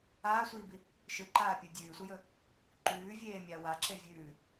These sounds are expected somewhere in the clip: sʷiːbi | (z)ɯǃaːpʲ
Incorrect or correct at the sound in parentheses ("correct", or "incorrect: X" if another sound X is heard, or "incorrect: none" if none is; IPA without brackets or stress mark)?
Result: incorrect: ʃ